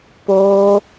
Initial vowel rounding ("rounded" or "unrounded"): rounded